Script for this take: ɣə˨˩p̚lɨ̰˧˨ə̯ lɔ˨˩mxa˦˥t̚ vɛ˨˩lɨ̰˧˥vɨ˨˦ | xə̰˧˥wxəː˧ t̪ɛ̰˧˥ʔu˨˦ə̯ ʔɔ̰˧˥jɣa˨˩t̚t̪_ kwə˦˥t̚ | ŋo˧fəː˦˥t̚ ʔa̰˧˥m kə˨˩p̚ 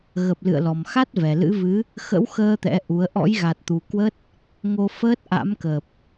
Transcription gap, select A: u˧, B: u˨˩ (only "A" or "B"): B